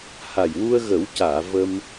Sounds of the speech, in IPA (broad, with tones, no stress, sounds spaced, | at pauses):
h a˨˩ j w u˧ ə̯ ɣ ə˨˩˦ w c aː˨˩˨ v ə˧ m